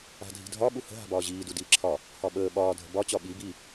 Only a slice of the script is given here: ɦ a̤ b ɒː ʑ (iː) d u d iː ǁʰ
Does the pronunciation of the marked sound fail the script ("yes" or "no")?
no